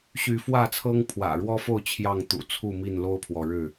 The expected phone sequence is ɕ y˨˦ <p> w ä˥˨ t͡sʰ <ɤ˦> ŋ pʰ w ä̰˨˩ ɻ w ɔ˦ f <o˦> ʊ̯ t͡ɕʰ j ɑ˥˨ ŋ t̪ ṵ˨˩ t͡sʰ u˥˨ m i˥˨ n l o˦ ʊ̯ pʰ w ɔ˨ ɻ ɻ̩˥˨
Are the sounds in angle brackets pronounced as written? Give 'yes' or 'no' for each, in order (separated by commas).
no, yes, no